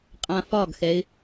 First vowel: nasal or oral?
nasal